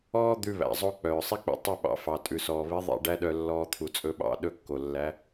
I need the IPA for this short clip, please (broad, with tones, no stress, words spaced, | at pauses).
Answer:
ɔː˥ d̪ʉ˧βæ̰˩zˤo˧ k͡pœː˩sˤi˥k͡pḛ˧ tˤɵ˥˩ɓɑ̰˩˥fɑ˩ tʼʉ˩sɔː˩βi˩˥ ðˤḛ˥˩ɖæ˥ɗœ˧lːɔː˧ t̪ʰu˩t͡sʼɵ˧ɓɑ̰˥˩ ɗɵ˥˩kːo˩ lːæ˩˥